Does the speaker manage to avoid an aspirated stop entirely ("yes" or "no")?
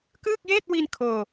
no